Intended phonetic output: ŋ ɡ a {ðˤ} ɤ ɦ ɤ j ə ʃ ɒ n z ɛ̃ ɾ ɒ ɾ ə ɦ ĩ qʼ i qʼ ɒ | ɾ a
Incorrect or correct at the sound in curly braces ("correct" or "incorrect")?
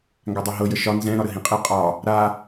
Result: incorrect